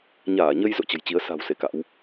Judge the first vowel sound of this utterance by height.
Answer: low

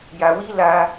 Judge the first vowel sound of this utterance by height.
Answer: low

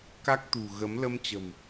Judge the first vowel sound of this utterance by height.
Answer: low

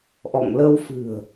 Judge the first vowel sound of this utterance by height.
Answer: mid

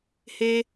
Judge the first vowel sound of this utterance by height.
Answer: mid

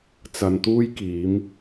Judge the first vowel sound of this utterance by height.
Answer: low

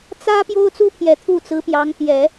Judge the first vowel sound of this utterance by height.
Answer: low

